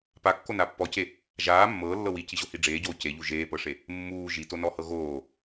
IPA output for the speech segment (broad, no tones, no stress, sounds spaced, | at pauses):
p a kː o n a pː ɔ c e | ʒ aː mː ɤː lː ɤ w i c i ʑ o h i ɖ͡ʐ eː ɟ oː c e ʎ u ʒ eː p ɤ ʂ e | mː uː ʒ i t o n ɔ h ɤ ɣ oː